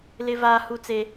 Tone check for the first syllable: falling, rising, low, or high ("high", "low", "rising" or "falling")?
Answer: high